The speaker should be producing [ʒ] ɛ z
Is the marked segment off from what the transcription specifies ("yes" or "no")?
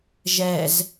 no